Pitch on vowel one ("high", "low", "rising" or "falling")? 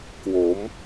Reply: rising